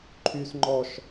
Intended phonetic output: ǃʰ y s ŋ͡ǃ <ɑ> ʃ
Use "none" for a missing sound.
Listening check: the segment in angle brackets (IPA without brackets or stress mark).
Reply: ɔ